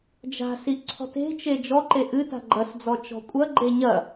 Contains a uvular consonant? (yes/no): no